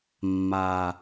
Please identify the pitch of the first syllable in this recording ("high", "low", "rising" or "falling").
low